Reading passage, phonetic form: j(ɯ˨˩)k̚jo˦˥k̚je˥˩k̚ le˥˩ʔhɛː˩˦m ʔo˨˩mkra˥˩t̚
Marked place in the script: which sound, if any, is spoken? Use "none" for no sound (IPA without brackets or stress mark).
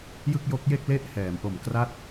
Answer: ɯ˥˩